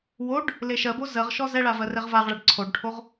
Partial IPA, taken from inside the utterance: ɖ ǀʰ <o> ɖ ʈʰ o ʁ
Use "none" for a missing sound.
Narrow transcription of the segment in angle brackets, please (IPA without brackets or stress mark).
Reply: o